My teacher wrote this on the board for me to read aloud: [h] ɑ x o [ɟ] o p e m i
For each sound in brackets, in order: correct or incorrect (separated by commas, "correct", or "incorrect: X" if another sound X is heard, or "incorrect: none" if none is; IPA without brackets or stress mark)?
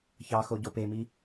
incorrect: ç, correct